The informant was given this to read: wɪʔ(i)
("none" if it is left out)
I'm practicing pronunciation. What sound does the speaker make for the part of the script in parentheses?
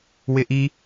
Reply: i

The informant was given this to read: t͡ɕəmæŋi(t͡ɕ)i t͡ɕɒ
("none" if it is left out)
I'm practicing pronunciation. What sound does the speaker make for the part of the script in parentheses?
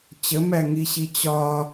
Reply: ɕ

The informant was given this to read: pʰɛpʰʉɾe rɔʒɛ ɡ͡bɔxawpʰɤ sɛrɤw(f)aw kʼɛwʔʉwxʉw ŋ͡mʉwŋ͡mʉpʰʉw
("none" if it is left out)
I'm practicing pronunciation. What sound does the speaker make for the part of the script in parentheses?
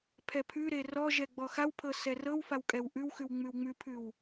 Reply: f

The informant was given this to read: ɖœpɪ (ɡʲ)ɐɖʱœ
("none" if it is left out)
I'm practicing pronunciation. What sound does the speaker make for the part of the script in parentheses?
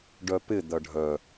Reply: d̪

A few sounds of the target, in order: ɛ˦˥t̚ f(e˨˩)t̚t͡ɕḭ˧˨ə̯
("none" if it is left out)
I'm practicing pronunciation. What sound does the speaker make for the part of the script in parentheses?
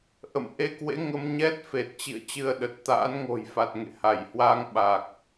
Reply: e˨˩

